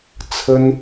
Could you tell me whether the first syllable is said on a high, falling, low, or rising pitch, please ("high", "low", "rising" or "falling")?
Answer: high